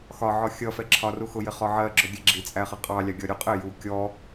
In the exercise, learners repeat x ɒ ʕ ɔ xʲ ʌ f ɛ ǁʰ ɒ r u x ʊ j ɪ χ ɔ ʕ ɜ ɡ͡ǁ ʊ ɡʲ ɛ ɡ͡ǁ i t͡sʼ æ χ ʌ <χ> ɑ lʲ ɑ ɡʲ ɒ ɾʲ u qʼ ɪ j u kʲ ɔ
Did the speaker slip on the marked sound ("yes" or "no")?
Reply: yes